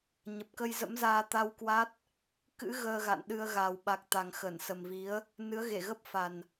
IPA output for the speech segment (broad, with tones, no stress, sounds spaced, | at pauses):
ɲ ə˨˩ p̚ k ə˧ j z ə̰˧˥ m z aː˧ t̪ a˧ w k w a˦˥ t̚ | k ɨ̰˧˥ ɣ əː˧ ɣ a̰˧˨ n ɗ ɨ˧ ə̯ ɣ a˨˩ w ɓ a˨˩ k̚ t̪ a˨˩ ŋ x ə˧˩ n s ə˨˩ m v i˨˦ ə̯ | n ɨ˨˦ ə̯ ɣ e˧˩ ɣ ə˦˥ p̚ f a˨˩ n